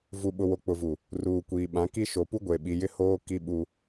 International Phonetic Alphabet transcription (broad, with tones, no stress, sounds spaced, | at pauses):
v u˨ ɓ ʊ˨ w o˨ k͡p ʊ˨ v u˨ | r uː˨ kʷ iː˨ ɓ ã˨˦ k i˦ ʃ o˨˦ p u˦ ɡʷ e˨ ɓ i˨ j ɪ˦˨ h oː˦ k i˦ ɓ u˦